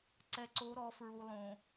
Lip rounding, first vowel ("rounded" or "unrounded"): unrounded